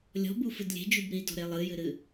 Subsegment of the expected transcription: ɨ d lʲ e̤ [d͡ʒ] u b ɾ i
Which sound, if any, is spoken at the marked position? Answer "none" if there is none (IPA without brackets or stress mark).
d͡ʒ